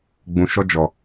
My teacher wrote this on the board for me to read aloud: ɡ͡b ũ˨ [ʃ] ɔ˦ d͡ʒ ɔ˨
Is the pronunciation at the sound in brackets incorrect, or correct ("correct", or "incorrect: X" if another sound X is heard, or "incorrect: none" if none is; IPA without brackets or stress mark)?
correct